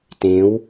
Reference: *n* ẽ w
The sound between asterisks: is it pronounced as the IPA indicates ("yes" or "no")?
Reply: no